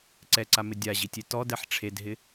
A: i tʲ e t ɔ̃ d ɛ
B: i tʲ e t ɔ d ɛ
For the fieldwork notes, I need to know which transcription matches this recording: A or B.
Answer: B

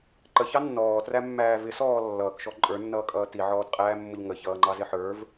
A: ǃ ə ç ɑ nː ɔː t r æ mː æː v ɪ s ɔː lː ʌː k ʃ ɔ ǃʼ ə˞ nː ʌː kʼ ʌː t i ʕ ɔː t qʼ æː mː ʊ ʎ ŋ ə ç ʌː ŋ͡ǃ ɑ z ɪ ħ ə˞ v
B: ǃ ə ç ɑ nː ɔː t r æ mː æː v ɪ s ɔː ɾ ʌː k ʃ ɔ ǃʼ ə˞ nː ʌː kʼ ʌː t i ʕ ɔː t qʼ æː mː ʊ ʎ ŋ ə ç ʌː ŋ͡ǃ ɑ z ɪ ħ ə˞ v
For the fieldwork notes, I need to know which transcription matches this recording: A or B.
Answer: A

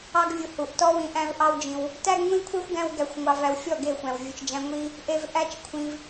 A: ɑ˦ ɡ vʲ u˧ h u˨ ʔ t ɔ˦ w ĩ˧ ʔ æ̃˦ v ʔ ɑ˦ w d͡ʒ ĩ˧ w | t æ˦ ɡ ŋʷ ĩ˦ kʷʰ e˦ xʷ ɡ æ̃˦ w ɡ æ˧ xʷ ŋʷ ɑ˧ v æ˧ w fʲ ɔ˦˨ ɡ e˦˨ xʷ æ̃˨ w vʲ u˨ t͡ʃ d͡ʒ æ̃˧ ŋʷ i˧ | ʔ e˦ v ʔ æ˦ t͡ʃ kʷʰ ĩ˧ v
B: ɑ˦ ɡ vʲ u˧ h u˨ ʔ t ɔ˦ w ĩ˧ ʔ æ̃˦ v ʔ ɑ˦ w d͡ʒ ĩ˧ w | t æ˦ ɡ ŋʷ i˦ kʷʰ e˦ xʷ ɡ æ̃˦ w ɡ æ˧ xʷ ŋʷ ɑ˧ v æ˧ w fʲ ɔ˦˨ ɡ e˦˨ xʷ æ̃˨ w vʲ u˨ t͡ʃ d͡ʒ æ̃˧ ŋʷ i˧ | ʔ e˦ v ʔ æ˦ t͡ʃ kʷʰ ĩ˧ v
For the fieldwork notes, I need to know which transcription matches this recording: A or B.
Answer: A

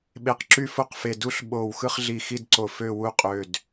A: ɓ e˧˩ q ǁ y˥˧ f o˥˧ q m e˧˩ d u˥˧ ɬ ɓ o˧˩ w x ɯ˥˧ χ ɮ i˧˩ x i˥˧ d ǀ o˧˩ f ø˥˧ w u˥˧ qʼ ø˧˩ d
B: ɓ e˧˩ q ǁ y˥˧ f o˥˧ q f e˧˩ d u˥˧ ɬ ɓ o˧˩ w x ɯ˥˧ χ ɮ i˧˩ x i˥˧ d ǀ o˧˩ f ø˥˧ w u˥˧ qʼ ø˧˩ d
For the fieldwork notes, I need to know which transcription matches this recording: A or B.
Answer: B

